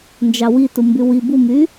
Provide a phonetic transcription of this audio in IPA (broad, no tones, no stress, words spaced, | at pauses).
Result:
nd͡ʒɑwi tumbywi bumy